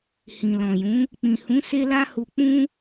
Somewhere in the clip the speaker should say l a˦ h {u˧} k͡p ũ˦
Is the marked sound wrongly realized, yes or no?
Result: no